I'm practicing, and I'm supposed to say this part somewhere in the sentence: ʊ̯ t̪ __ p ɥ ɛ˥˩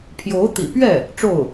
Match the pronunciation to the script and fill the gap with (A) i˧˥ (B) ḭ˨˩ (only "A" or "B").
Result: B